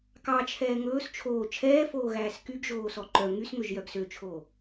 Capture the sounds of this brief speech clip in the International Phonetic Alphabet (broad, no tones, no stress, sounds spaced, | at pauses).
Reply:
k ɑ t͡ʃʰ ɛː ŋ ɵː s t͡ʃʰ oː t͡ʃʰ ɛː f oː ɣ æː s k y ɡ ʒ oː s ɔ ǃ œ ŋ y s ŋ ø ʒ j œ ɡ s ø t͡ʃʰ oː